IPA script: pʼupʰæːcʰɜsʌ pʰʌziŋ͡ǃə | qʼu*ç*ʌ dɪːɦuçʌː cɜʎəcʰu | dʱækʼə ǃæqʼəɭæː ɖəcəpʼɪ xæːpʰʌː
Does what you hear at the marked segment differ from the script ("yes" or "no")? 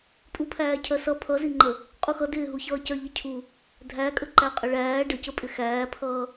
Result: yes